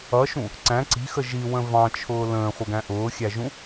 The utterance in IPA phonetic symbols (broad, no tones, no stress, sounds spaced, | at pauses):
ʌ ʃ ũ | ǀ æ̃ ǀ i̤ x ə ʒ i w ə̃ v ɑ̃ t͡ʃʰ ʊː l ə̃ː χʷ ə ɡ æ̃ ʔ ʊː xʲ æ ʒ ũ